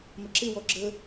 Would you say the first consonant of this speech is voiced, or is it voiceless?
voiced